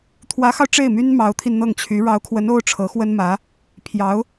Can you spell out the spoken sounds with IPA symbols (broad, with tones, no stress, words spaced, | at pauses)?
t̪ʰwä˧˥xɑ˧ʊ̯ ʈ͡ʂe˥˩ɪ̯my˥n mɑ˧˥ʊ̯t̪ʰi˧nn̪ɤ˥˩ŋt͡ɕʰy˧˥ ɻɑ˧˥ʊ̯kʰwə˧˥n o˥ʊ̯ʈ͡ʂʰɤ˧˥xwə˥nmä˧˥ | pʰjɑ˧˥ʊ̯